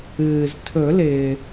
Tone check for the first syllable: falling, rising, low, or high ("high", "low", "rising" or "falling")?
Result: low